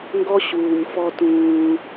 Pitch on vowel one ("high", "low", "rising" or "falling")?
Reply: high